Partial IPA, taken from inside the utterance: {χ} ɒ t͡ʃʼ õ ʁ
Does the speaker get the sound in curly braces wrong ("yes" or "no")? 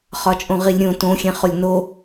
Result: no